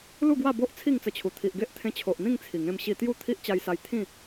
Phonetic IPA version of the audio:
lu˥˧ɡwa˥˧bo˦ʔ t͡sʰi˥˧ŋt͡sə˧t͡ɕʰu˨˩ t̪ʰi˨ʔɡe˦ʔt̪ʰẽ˧t͡ɕʰo˨ʔ n̪ĩ˥˧ŋ t͡sʰi˨˩ŋẽ˧m ɕi˧t̪ju˥˧ t̪ʰi˦ʔt͡ɕa˧jsa˧j t̪ʰĩ˥˧

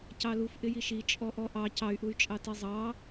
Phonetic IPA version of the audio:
cɑluf ʔɪjiʃi t͡ʃʼɔʔɔʔɑ cɑy̯ʔuy̯t͡ʃʼɑ tizˤɑ

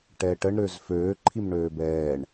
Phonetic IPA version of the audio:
ʈɛʈəɳ ɾøzføː ǃʰimɳøːbɛːɳ

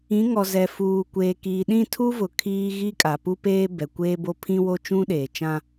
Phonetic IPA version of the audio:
ĩ˨˦ŋɔ˨zɛ˨ fuː˨kʷeː˨kiː˨ ɗĩ˦˨tʰu˦vʊ˨ kʰiː˦ ɣi˦kʼa˨pu˦peː˦ bɛ˨kʷeː˦bo˦ pʰĩ˦wo˦ t͡ʃũ˦ɗeː˨t͡ʃã˦

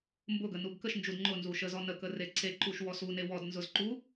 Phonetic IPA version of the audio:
mbʊɡə nuɡkəʃnd͡ʒud ŋ͡ǃʊnzu ʃəzɔ nəkə reǀeǃuʃ wɔsune wɔdnzʊz ǃu

